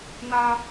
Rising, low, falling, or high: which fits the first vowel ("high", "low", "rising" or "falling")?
high